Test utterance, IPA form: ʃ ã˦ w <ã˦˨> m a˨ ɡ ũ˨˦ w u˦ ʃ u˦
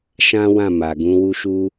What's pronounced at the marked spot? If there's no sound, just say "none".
ã˦˨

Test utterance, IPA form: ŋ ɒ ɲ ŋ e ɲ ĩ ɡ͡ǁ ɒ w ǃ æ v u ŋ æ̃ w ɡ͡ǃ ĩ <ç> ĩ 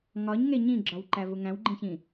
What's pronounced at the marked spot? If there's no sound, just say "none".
ç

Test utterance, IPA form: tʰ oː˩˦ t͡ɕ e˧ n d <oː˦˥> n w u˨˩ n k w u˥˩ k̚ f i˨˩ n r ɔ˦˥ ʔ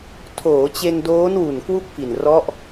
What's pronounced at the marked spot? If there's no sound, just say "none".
oː˦˥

